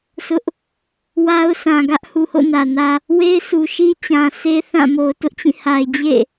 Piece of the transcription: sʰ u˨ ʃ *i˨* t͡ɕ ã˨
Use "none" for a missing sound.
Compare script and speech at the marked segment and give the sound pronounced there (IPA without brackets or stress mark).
i˦